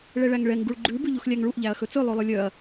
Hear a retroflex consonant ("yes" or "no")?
yes